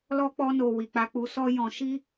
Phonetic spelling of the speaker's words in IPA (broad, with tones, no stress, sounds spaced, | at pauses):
l ɔ˦ k͡p ɔ˦ n o˧ w i˨ k͡p a˧ k͡p u˧ s ɔ˦ j ɔ̃˧ ʃ i˦